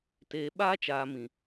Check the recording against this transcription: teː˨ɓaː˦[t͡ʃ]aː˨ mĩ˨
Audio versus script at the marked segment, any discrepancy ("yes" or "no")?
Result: no